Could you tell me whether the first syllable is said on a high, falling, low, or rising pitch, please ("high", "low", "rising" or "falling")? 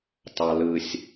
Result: low